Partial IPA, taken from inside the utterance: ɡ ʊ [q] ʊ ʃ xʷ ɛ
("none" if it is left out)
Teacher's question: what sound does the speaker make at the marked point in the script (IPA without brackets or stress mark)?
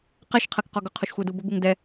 qʰ